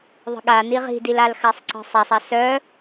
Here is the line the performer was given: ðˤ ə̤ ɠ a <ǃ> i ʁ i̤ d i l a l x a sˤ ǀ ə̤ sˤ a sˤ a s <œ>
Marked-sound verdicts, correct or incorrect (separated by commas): incorrect, correct